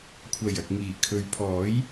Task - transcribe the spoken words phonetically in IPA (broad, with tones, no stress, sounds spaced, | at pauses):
kʷʰ ɐ˨˩ j ɐ˨ k̚ ŋ iː˨˩ kʰ ɵ˨˧ ɥ pʰ ɔː˨˥ j